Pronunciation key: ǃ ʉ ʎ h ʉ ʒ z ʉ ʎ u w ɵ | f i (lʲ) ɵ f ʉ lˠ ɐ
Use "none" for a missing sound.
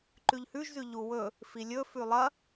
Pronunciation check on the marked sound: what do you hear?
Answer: lʲ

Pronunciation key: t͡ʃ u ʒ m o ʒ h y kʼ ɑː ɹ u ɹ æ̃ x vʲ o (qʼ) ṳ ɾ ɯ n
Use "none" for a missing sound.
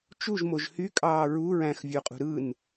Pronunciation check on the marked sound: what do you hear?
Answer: qʼ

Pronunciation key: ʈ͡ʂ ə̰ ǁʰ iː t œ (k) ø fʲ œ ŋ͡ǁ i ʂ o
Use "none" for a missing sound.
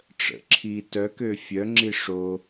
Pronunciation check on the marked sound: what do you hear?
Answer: k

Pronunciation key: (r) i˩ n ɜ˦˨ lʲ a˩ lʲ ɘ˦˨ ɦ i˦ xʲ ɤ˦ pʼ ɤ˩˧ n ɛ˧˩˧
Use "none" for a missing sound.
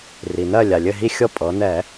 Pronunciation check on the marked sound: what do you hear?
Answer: r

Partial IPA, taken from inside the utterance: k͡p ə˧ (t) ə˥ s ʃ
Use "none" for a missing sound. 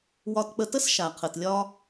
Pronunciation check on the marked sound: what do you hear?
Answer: t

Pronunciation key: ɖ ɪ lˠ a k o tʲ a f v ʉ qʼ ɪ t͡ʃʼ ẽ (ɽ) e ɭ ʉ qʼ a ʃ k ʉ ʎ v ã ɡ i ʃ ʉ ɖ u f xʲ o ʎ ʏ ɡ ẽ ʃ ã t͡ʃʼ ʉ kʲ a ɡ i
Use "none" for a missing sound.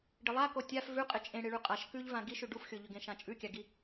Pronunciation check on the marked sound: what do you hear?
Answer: ɽ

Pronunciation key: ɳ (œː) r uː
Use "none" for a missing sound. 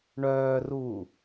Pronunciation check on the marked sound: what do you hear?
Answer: œː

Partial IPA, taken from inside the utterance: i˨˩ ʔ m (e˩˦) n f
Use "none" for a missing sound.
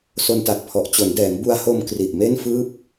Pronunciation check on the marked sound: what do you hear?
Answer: e˥˩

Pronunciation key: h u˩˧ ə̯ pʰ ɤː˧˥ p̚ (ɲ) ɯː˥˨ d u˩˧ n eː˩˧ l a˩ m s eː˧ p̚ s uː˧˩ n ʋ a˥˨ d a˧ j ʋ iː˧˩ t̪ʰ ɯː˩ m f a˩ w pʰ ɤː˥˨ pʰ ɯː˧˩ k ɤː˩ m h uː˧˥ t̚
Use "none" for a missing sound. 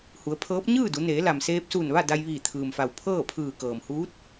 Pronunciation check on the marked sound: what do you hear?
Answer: ɲ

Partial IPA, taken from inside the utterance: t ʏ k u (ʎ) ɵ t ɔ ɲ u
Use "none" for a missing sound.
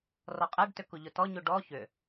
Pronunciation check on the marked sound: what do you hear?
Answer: ʎ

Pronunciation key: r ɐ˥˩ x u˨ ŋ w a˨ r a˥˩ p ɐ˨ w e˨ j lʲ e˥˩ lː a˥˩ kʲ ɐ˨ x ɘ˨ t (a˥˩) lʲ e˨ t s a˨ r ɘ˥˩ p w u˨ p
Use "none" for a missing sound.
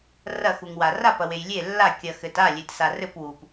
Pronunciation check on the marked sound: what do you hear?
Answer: a˥˩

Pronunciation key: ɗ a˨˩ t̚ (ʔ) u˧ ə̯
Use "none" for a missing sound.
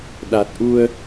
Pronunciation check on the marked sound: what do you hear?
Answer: ʔ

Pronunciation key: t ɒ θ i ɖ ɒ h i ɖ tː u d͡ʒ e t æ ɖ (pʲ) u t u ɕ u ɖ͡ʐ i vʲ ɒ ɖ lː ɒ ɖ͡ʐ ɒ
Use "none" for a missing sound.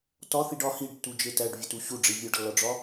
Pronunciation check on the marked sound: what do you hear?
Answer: vʲ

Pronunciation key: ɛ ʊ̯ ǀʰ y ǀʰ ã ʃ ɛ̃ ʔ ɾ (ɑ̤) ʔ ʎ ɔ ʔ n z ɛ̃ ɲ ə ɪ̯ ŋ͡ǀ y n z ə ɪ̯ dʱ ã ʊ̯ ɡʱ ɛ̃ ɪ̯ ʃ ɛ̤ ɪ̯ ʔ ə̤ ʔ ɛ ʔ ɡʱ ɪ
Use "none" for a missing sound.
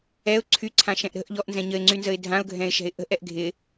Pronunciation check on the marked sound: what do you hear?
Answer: ə̤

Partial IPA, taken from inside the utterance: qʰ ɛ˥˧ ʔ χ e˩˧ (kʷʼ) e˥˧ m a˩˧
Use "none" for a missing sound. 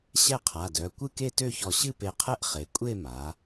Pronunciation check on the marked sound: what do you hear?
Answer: kʷʼ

